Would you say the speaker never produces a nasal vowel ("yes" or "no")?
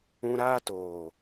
no